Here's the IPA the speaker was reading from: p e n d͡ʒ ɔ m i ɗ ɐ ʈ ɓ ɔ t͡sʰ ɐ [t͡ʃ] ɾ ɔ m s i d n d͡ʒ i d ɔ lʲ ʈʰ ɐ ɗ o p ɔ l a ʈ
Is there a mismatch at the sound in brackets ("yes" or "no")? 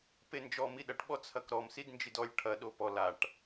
yes